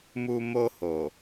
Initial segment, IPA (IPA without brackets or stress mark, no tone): m